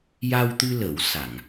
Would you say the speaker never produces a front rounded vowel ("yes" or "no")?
yes